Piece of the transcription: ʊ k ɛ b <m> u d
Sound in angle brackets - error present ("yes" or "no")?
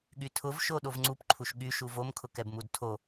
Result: no